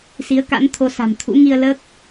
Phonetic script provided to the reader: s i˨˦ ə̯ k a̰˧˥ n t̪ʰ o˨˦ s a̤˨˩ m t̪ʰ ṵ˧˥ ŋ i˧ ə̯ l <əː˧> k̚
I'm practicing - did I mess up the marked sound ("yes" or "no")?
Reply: yes